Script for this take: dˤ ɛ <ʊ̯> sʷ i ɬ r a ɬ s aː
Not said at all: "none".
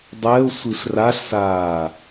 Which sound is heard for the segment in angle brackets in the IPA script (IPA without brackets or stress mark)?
ʊ̯